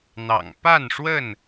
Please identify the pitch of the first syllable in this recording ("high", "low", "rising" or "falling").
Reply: low